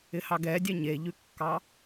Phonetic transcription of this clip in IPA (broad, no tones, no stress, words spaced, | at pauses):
ɪhɑɡɛdʲɛ ɲeʎʉkːɑ